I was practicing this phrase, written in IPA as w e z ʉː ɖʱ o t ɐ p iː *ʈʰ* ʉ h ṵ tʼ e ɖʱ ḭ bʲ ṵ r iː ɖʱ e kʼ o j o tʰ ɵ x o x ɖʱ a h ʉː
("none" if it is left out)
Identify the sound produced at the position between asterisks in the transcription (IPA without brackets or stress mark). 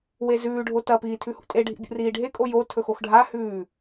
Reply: tʰ